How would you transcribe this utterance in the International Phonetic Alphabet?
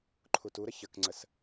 ǃʰ u t u ɾ ə ç ə k ŋ͡ǀ ə s

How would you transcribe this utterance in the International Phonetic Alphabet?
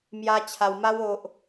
m j a˦ t͡ɕʰ a˧ w m a˦ w o˦ ʔ

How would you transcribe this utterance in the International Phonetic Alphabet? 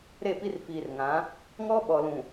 ɾ e˦˨ p i˦ r f iː˨ r ŋ ã˨˦ | ŋ ɔ˦ ɓ ɔ˨ l ũ˨

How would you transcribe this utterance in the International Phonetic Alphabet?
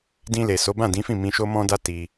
d ĩ˧ l e˨ s o˨˦ b ã˦˨ d ĩ˨˦ f ĩ˦˨ m ĩ˧ ʃ o˦ m ɔ̃˦ d a˦ t i˧

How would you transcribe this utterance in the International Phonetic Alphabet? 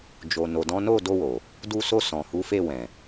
d͡ʒ o˨ n o˨ d ɔ̃˨˦ n o˦˨ d o˧ w o˨ | d u˧ s o˧ s ɔ̃˨ h u˨˦ f e˦˨ w ɛ̃˨

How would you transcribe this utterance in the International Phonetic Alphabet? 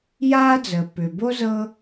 j aː˥ d͡z əː˩ p ʏ˩ b o˥ z ɤ˦

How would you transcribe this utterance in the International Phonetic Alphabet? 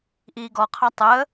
ʔ iː ɡ ɔ qʰ ɑ tˤ əː

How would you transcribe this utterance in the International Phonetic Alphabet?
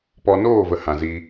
p ɔ˧ n oː˦˨ v ə˧ h ã˨ z i˧

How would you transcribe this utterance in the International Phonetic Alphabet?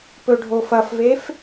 p ɵ ɖʱ o f ɐ f v e f

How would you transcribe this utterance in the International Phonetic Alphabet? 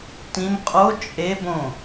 t ĩ m qʼ o t͡ʃʼ e b õ

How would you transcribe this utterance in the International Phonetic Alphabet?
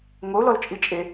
ŋʷ ə o̯ l ɔ l t͡ʃʼ i t͡ʃʼ e

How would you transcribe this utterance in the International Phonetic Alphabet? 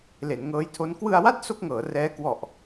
l e˩˦ n ŋ ɤː˦˥ j tʰ o˦˥ n k w ɯ˧ a̯ w a˥˩ t̚ s o˥˩ k̚ ŋ ɤː˩˦ r ɛː˦˥ k w ɔ˨˩ ʔ

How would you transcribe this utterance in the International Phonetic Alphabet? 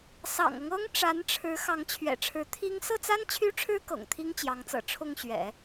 s ɑ̰˨˩ ŋ ɤ˦ ŋ ɤ˥ ŋ ʈ͡ʂ a˧˥ n ʈ͡ʂʰ ɻ̩˧˥ x ɑ˧˥ ŋ t͡ɕʰ ɥ ɛ̰˨˩ ʈ͡ʂʰ ɻ̩˧˥ t̪ʰ i˥ ŋ s ɤ˥˩ t͡s a˥ n t͡ɕʰ y˥ ʈ͡ʂʰ ɻ̩˥ k ɤ̰˨˩ ŋ t̪ʰ i˥ ŋ t͡ɕ j ɑ˧˥ ŋ t͡s ɤ̰˨˩ ʈ͡ʂʰ ʊ˥˩ ŋ ɕ ɥ ɛ̰˨˩˦

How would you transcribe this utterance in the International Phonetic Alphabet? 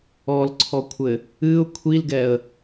ɔ l ǀʰ ɔ kʷʰ ɘ | ɨ ʊ̯ kʷʰ i l ɡ ɛ ə̯

